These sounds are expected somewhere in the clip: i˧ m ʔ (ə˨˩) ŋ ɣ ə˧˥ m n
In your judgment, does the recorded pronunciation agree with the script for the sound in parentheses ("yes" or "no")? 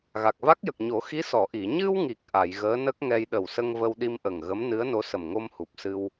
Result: yes